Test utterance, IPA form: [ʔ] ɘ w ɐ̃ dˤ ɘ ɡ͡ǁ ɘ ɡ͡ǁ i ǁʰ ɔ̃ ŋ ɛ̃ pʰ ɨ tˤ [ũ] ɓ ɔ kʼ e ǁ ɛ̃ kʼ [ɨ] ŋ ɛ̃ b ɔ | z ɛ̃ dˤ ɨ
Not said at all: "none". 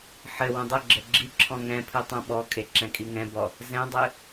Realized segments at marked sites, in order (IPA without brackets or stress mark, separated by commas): ħ, õ, i